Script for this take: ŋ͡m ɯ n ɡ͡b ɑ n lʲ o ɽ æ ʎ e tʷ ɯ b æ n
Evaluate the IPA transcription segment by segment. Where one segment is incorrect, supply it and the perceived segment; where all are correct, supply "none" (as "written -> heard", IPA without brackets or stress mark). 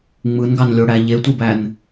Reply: ɡ͡b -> ɡ